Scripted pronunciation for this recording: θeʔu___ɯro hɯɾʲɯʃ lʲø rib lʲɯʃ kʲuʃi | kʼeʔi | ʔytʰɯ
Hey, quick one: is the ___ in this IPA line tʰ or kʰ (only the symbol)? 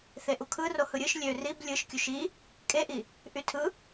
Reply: kʰ